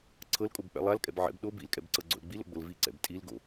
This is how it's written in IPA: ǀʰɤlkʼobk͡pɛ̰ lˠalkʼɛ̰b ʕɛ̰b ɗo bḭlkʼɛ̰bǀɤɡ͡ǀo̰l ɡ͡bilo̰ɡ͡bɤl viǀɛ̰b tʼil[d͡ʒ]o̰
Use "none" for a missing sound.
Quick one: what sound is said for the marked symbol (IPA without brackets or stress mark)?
ɡ